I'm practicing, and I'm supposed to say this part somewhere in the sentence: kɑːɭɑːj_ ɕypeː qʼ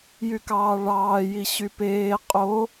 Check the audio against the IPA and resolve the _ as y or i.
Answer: i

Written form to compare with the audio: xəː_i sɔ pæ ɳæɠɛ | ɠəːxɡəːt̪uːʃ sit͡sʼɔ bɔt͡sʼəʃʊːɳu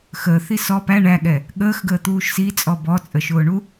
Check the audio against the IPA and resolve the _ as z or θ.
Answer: θ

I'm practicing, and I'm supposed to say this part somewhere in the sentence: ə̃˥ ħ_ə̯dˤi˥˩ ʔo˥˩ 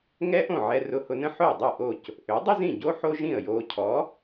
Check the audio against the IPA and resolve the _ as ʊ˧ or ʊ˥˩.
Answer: ʊ˥˩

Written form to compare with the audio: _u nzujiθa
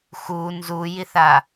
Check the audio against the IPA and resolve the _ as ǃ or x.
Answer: x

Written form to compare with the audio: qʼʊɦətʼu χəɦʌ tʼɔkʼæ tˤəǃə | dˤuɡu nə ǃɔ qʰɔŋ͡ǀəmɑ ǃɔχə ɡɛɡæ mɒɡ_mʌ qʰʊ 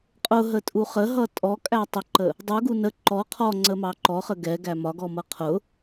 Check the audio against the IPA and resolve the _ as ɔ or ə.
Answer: ɔ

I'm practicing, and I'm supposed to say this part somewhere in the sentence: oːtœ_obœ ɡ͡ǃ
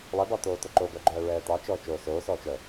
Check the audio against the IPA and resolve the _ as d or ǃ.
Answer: ǃ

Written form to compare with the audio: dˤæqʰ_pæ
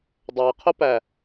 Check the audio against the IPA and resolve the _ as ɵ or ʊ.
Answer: ʊ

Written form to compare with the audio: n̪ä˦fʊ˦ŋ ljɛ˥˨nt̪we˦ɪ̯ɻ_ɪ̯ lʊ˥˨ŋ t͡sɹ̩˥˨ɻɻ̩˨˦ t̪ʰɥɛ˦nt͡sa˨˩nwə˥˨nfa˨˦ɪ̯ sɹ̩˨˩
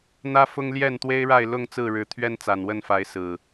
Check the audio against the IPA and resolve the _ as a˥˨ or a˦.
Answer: a˥˨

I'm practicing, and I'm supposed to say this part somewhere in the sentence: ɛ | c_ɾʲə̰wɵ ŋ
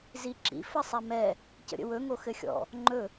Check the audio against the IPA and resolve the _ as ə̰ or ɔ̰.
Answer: ə̰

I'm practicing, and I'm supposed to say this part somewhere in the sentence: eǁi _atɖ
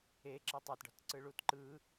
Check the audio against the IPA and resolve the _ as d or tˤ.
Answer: tˤ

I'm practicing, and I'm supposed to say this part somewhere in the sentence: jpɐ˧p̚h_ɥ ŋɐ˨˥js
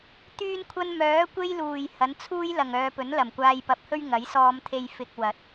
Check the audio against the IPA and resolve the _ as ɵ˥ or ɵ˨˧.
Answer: ɵ˥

